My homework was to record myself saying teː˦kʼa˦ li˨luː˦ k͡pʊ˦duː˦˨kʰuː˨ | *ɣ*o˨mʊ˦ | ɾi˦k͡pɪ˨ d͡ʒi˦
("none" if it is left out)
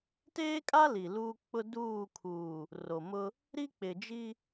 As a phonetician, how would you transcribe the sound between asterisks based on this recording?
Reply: r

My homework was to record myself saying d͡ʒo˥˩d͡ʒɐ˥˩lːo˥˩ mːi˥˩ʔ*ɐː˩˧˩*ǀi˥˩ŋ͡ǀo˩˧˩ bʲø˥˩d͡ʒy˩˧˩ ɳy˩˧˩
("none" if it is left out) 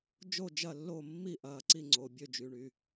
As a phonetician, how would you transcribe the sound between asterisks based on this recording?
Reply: ɐː˩˧˩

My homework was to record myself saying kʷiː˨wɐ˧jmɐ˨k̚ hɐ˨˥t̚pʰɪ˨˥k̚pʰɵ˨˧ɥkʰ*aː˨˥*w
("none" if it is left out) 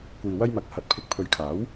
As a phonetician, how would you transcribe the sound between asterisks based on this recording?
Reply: aː˨˥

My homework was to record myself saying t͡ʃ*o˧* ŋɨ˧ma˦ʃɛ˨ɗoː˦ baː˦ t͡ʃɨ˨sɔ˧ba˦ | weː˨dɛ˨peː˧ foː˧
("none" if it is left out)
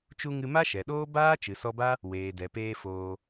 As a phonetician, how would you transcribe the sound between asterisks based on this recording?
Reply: u˧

